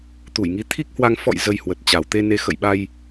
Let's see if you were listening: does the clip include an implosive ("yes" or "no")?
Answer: yes